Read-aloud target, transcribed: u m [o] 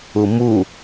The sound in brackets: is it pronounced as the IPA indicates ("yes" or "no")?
no